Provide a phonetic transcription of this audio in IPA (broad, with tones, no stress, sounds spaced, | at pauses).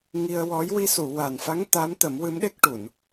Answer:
ŋ i˧ ə̯ w ɔ˧˥ j w i˧ s u˨˩˨ w a˨˩ n f a˧˥ ŋ t̪ a˧˥ m t̪ ə˨˩˦ m w ɨ˧˥ m ɗ e˦˥ k̚ ʈ u˨˩˨ n